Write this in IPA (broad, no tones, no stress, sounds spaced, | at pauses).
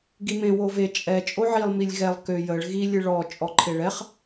ɡ i m ẽ w o v e t͡ʃʼ ɛ t͡ʃʼ o ʕ i lˠ m i lʲ ɣ ɛ lˠ k ø j ə ɭ ɣ i lʲ ɨ ɭ ɔ t͡ʃʼ ɔ ǃʰ e ɭ ɛ χ